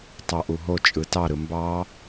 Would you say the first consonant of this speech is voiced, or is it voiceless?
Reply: voiceless